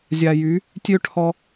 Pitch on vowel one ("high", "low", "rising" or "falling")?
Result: low